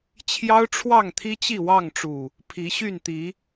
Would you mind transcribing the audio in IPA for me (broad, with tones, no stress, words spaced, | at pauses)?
t͡ɕʰjɑ˦ʊ̯ʈ͡ʂʰwɑ˥˨ŋt̪ʰi˦ t͡ɕi˥˨wɑ˥˨ŋʈ͡ʂu˨˩ | pʰi˨˦ɕy˥˨nt̪i˨˦